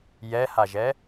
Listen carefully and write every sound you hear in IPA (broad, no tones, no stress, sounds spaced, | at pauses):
j ɛ h a ʒ ɛ